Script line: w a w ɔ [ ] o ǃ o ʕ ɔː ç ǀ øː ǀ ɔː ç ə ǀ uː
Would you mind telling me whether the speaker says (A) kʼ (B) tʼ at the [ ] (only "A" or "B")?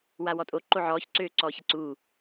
B